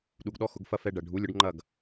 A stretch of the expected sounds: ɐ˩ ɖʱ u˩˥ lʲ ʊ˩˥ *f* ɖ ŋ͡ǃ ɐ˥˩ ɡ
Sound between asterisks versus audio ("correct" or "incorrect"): incorrect